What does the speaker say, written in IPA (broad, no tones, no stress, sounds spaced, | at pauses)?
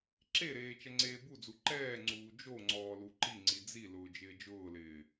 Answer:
ǁ e ɾ eː t͡ʃ ɛ ŋ͡ǀ eː b u d͡z u ǃ ɛː ŋ͡ǀ uː d͡ʒ o ŋ͡ǀ ɔː l u ǃ i ŋ͡ǀ i d͡z i l ʊː d͡ʒ ɪː d͡ʒ ʊː l ɪː